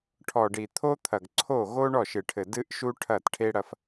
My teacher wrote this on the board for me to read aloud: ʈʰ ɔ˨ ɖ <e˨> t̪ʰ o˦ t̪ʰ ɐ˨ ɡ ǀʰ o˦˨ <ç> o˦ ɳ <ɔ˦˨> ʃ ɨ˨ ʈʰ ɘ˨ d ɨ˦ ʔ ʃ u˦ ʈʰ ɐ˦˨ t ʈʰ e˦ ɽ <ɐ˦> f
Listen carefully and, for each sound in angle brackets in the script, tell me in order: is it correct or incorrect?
incorrect: i˨, incorrect: ɣ, correct, correct

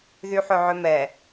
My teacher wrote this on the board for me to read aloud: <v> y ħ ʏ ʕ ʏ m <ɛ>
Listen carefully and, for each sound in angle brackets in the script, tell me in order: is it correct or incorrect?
incorrect: ð, correct

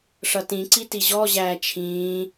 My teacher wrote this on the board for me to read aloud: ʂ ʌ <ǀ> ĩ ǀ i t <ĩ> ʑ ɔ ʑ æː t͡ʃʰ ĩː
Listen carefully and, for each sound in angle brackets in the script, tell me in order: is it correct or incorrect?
incorrect: t, incorrect: i

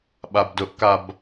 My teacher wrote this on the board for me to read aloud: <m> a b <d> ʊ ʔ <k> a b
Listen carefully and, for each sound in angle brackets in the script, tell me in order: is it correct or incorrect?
incorrect: ɓ, correct, correct

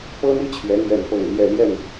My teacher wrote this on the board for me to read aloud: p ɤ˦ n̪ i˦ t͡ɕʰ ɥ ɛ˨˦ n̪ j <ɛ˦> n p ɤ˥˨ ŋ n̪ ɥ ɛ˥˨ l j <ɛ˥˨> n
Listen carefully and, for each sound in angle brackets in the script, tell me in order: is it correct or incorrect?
incorrect: ɛ˥˨, correct

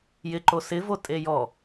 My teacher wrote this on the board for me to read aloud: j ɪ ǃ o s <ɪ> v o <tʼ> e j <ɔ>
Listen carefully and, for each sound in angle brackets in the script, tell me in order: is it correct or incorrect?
correct, correct, correct

